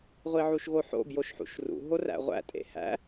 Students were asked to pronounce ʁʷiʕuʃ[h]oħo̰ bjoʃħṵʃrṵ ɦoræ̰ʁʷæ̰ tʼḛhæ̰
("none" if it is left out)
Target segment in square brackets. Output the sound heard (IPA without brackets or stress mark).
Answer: ɣ